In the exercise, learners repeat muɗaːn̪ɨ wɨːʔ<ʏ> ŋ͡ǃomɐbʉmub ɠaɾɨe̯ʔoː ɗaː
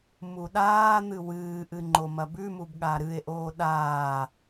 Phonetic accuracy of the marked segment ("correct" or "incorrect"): incorrect